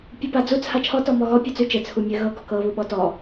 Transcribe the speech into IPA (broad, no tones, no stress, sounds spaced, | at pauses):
pʲ u p a d͡z u t͡sʰ a t͡ʃʰ ɔ t ɔ m ɔ ɣ ɔ pʲ ʉ t͡s ʉ t͡ʃ ɘ t͡sʰ u mʲ ɘ ɣ ɤ ɡ ɔ k ɤ β u ɓ ɔ t ɔ